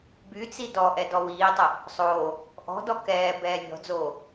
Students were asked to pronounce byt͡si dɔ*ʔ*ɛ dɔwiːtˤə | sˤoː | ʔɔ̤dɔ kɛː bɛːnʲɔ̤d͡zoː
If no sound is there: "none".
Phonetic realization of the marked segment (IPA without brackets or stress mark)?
ʔ